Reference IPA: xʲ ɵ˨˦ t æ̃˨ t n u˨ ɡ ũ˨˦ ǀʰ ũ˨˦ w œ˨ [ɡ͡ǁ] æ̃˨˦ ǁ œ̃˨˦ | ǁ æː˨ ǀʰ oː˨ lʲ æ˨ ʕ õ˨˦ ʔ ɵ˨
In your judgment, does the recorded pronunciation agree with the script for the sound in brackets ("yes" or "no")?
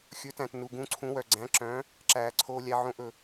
no